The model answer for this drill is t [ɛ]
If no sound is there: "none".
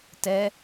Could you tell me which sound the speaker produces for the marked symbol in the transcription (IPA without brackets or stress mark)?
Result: ɛ